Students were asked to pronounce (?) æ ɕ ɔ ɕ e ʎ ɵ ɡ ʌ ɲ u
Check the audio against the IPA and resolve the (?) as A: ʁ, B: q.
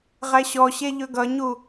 A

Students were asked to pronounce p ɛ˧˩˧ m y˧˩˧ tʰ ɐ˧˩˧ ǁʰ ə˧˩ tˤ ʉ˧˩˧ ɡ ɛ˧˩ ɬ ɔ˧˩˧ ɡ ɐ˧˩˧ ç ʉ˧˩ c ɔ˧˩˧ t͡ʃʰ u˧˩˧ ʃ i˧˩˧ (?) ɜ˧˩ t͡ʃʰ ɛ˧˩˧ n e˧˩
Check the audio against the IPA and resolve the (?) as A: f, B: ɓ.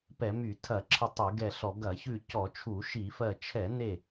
A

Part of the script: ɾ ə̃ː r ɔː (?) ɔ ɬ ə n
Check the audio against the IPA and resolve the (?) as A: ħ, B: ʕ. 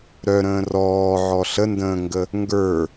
B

